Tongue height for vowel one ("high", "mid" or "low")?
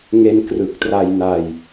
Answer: mid